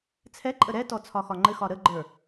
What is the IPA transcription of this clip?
t͡sʰɛǃʼə ɾɛtɔ t͡sʰɒxɒŋ͡ǃɘxɒ ɾəɡ͡ǃə˞

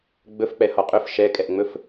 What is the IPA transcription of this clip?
ɡ͡bɵfk͡pɛ hɔqʼɵf ʃɛkʼɛʔŋ͡mɵf

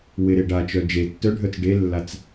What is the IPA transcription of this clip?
wɪɾe ɖat͡ʃœ d͡ʒe tːœɖʱœt͡s ɖelːat͡s

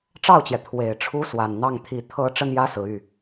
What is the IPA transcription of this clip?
ʈ͡ʂɑ˥˩ʊ̯t͡ɕjɛ˩ t̪ʰwe˨˩ɪ̯ʈ͡ʂʰu˥ swa˨˩nn̪ɑ˥˩ŋ t̪ʰi˨˩ t̪ʰɤ˧˥ ʈ͡ʂə˥njä˥sɹ̩˨˩ y˥˩

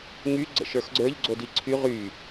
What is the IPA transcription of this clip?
ŋy ɡ͡ǀə̰ʃə˞xɡ͡ǀə˞ʎ ɡ͡ǀodiǀʰy ʁy

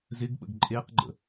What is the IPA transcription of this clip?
zɪɡɓə̰ɡ ǃʼeqɡ͡ǃə̰

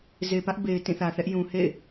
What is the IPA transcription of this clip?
ze˨ pä˦ʔ be˨ɪ̯ tĩ˦˨θä˨θɛ˦ʔ jũ˨hḛ˦˨ɪ̯

